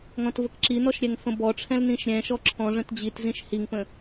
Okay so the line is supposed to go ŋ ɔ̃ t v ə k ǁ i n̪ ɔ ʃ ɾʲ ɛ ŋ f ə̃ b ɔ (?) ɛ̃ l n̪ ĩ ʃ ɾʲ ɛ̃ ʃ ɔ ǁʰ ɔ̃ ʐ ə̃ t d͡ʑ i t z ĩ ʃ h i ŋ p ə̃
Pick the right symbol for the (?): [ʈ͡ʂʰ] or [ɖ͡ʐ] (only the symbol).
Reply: ʈ͡ʂʰ